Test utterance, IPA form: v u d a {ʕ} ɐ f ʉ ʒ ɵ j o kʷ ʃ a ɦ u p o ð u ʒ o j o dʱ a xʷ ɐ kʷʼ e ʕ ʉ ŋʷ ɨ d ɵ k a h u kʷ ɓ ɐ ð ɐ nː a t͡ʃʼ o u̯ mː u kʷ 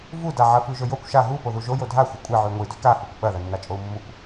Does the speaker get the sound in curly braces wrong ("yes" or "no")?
no